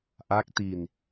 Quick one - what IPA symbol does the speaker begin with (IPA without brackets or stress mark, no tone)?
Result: ʔ